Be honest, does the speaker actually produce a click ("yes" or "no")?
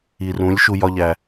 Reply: no